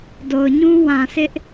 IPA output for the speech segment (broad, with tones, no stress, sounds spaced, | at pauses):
d o˨ ʊ̯ ɲ ũ˦ w ã˨ sʰ ɪ˦ ʔ